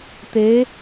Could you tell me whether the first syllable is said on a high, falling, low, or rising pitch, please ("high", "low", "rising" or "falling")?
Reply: rising